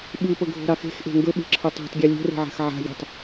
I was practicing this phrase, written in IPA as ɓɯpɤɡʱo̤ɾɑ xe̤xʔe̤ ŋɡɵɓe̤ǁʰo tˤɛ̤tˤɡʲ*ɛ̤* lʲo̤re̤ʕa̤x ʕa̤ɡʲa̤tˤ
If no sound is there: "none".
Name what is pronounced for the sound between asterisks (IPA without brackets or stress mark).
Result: ɛ